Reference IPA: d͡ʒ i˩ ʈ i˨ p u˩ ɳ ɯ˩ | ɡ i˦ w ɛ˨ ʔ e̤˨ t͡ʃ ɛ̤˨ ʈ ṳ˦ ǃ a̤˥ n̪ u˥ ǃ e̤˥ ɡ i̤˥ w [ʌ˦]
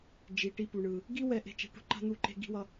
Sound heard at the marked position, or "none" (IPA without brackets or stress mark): ʌ˦